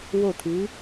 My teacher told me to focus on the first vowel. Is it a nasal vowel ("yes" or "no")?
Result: no